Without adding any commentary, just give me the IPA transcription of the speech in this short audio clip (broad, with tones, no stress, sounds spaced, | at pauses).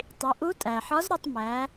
tˤ i˩˧ ʔ u˧˥ tʼ æ˩ ħ ɒ˧˥ z ɾ ɒ˧ tˤ m æ˩˧